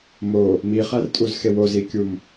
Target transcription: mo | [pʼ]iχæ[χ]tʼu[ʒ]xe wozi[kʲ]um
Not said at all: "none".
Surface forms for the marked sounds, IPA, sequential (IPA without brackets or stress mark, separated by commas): m, r, z, kʲ